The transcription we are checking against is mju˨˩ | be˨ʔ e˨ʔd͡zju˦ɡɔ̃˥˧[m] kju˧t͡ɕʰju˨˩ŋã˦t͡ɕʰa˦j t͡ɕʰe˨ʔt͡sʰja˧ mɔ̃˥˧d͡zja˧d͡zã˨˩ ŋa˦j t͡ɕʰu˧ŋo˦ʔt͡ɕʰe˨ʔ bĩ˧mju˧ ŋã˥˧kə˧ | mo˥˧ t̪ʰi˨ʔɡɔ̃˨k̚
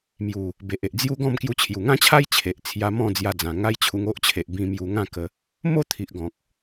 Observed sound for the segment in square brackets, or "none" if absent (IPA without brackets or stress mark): m